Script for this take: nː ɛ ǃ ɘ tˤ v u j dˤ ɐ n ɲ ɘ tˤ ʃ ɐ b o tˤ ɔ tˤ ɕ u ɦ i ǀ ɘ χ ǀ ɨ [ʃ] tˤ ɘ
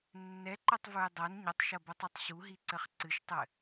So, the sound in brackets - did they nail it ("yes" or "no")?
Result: yes